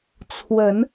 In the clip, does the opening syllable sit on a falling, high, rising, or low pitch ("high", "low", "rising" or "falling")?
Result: rising